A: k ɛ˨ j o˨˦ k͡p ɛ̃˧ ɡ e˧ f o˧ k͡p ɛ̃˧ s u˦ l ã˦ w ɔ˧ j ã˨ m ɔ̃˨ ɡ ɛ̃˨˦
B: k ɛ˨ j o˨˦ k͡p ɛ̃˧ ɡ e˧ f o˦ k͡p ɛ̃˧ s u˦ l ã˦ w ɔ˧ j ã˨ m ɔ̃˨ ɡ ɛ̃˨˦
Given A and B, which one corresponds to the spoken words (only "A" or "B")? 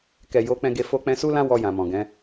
A